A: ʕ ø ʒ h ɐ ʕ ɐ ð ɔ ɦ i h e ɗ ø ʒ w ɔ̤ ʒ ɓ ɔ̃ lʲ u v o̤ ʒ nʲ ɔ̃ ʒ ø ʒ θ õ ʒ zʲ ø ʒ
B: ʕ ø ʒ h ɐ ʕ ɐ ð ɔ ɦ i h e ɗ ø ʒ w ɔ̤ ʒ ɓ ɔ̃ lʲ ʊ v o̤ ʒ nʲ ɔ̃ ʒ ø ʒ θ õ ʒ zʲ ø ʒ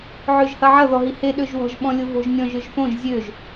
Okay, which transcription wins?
B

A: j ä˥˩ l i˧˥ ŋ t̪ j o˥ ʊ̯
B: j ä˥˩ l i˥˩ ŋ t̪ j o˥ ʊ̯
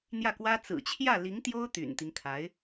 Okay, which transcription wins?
A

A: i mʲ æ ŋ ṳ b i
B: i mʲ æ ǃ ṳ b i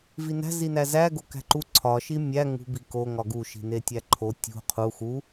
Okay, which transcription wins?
A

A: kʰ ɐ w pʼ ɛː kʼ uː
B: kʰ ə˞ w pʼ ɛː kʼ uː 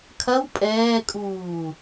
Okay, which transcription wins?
A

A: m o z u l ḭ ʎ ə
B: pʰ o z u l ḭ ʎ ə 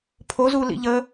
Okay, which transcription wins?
B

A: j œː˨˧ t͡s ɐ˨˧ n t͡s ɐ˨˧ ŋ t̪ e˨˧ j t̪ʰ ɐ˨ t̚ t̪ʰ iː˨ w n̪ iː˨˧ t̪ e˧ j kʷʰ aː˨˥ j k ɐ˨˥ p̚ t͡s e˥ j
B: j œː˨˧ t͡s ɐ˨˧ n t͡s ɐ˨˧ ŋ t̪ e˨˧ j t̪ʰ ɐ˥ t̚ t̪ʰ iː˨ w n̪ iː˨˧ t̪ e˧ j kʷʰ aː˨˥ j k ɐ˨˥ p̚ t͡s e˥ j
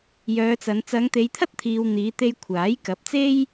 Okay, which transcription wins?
B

